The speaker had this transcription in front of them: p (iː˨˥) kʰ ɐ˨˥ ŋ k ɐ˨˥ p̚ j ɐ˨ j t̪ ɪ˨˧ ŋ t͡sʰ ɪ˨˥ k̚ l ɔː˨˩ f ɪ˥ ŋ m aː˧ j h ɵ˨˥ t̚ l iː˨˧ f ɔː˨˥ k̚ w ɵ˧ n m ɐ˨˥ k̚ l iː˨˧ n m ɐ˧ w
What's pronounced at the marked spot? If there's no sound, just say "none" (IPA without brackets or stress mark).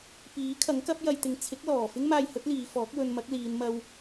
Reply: iː˨˥